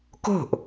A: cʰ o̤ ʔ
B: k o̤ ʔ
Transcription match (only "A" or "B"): B